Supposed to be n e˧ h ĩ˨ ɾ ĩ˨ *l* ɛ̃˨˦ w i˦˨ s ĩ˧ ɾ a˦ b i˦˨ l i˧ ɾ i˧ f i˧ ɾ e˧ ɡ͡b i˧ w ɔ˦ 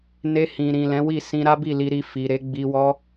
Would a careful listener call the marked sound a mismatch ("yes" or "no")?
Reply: no